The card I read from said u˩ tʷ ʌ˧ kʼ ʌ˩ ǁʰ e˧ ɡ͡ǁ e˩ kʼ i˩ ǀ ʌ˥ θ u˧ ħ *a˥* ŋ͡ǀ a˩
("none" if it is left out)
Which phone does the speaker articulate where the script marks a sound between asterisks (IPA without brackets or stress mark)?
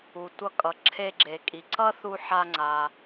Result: a˧